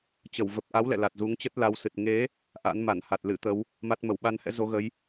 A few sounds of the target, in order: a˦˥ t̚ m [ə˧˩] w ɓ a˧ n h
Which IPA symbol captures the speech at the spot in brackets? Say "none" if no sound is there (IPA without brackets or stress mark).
ə˧˩